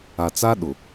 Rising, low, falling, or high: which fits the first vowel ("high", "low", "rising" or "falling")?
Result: low